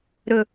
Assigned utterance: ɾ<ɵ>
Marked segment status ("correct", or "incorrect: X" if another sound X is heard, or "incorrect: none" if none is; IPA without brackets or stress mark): correct